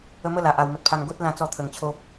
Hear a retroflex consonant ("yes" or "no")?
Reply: no